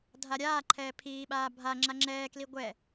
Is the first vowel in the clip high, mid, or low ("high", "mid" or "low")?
low